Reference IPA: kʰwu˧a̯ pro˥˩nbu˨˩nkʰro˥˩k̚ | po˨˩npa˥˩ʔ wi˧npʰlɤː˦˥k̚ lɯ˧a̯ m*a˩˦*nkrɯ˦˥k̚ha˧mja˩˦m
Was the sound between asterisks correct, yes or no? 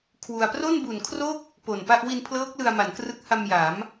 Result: yes